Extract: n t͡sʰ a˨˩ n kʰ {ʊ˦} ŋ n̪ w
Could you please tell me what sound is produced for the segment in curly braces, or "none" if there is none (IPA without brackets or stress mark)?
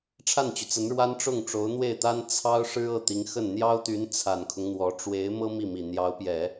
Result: ʊ˦